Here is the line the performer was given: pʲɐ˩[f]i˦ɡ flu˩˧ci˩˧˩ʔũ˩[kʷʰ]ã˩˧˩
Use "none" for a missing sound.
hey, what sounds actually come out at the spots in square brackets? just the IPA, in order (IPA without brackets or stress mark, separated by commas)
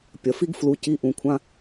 f, kʷʰ